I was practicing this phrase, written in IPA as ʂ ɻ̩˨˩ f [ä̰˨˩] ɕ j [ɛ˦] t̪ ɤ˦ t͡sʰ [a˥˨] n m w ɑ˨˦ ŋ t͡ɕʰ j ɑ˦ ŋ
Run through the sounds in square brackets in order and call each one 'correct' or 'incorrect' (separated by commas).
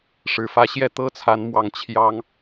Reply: incorrect, incorrect, incorrect